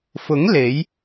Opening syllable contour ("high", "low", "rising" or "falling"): rising